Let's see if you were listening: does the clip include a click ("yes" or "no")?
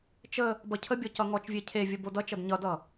no